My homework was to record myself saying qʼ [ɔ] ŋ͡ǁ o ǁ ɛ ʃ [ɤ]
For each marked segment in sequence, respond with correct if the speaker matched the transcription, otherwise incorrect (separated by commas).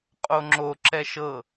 incorrect, correct